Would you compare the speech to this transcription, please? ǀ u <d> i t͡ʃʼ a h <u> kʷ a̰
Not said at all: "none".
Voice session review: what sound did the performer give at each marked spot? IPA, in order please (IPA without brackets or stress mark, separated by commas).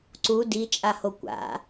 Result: d, o